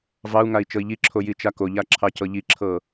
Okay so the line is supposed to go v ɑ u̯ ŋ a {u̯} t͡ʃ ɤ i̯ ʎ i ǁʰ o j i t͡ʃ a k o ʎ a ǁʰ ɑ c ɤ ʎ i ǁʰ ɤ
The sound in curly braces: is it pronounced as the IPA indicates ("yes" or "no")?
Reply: no